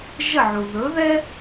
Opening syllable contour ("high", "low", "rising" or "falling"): falling